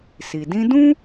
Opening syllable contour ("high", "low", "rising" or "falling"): low